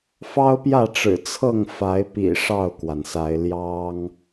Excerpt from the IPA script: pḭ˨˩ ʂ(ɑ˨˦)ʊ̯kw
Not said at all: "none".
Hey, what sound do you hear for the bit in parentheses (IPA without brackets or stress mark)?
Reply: ɑ˥˨